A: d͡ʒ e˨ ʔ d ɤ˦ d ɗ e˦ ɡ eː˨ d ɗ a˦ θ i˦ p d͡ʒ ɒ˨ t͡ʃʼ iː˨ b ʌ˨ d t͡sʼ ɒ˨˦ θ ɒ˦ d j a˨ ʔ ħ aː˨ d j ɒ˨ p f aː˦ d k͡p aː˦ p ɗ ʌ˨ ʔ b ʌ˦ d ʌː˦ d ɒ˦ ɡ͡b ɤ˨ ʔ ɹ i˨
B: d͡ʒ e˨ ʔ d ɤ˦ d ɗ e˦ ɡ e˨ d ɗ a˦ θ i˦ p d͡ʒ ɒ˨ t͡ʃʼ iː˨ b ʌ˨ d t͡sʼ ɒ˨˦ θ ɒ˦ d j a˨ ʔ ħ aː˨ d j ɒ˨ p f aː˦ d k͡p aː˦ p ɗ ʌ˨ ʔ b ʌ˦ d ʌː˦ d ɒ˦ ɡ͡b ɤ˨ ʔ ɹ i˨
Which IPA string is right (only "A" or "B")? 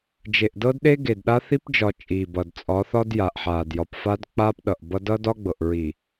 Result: B